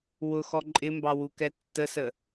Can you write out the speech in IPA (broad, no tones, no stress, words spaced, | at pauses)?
wʊ xɔǃʼɪmbɑ wukɛtːəsə